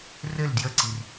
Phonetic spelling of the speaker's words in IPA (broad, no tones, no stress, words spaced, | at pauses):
rɘl djəǀir